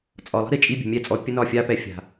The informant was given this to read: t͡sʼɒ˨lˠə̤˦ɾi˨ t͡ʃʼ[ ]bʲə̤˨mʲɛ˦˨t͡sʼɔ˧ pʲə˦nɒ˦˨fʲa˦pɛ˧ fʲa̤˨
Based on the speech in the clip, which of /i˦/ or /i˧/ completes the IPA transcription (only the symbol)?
i˦